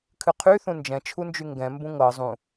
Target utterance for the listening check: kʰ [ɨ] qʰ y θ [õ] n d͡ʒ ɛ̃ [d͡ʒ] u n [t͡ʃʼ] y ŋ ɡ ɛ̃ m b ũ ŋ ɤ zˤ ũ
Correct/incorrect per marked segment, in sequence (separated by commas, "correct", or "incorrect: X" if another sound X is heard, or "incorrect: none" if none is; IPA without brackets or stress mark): correct, incorrect: ũ, incorrect: t͡ʃʰ, incorrect: d͡ʒ